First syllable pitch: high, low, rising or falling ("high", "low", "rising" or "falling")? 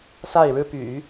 falling